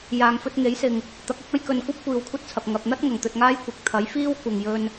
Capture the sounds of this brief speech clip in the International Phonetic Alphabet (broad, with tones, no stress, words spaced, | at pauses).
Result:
jaː˨ŋfɵ˧t̚ŋe˨˥jsɪ˨ŋ | t̪ɐ˨˥k̚ɪ˨˥k̚ ɐ˥jkɵ˨nkʷɐ˥p̚ kʷiː˨wkʷʰɐ˥t̚t͡sʰɐ˨p̚ ŋɐ˧p̚ n̪ɐ˥t̚ŋɐ˨˩ŋt̪ɵ˨t̚ ŋaː˥j kʷɪ˨˥k̚ t̪ʰɐ˨˥jfiː˥w kʷɐ˨ŋjɵ˧n